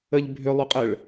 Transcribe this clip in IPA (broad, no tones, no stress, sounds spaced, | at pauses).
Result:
ə ʎ bʱ ʏ lˠ ʏ qʼ ə ɭ